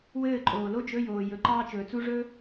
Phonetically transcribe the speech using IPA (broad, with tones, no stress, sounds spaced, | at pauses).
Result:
w ɘː˥˩ ǃʼ oː˩ l o˥ d͡ʒ ɵ˧˥˧ j oː˩ j ɵ˩˧˩ ǃ ɑː˥ t͡ʃ ɵː˩ t͡s u˥ ʐ ɵ˥